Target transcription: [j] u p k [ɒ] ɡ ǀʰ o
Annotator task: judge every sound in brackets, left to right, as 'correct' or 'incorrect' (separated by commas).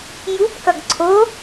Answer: correct, incorrect